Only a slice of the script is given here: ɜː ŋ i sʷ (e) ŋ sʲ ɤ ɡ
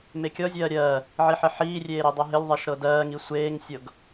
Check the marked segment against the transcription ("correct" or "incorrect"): incorrect